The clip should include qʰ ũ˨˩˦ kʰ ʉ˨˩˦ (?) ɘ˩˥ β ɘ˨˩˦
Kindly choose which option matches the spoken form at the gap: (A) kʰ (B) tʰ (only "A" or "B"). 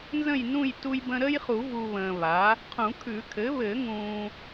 A